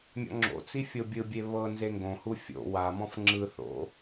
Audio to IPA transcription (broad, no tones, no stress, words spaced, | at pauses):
mʲɔ̰ŋ͡ǁo̰t͡si fʲobʲɯbʲe βɤ nzeŋɡõhu fʲo̰ wamɔ̃f ŋ͡ǁɯ θo̰